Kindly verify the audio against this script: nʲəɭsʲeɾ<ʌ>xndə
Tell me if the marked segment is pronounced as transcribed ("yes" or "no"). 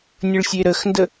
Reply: no